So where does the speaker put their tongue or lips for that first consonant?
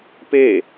lips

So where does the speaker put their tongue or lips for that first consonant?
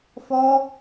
lips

